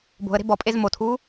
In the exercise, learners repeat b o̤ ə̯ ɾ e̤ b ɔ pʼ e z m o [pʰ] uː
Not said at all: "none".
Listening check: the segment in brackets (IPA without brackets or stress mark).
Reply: tʰ